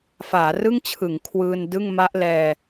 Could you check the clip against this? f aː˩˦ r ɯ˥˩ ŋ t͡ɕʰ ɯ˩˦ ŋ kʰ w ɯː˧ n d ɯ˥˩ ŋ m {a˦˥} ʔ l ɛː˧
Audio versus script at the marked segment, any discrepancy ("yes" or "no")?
no